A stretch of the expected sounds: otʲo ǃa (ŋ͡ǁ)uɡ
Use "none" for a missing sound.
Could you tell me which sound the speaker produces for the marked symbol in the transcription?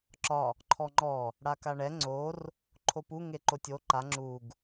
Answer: ŋ͡ǁ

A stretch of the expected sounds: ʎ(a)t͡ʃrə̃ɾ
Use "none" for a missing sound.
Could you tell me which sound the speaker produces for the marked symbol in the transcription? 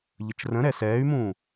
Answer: ə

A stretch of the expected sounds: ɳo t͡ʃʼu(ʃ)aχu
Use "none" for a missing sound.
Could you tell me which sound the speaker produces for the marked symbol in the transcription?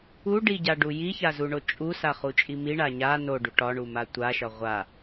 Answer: s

